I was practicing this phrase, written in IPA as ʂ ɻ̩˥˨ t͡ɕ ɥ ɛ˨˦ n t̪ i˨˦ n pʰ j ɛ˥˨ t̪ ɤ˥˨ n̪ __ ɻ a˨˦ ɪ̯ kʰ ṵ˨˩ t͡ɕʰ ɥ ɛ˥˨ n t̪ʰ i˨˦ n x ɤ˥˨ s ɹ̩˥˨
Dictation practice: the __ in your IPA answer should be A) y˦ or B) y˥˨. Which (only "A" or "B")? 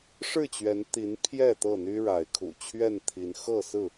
A